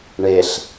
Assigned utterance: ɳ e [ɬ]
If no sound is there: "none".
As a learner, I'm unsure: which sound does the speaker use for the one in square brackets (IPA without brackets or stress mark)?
ɬ